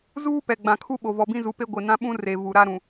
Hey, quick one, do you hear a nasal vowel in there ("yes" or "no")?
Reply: yes